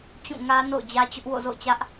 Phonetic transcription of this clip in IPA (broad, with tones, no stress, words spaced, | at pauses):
t͡ɕũ˦˨ ŋä˦no̰˦˨ʊ̯d͡ʑä˦t͡ɕʊ˦ʔ wo̰˦˨zo̰˦˨ʊ̯t͡ɕä˦ʔ